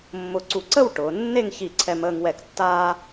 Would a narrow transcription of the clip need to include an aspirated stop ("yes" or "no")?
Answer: yes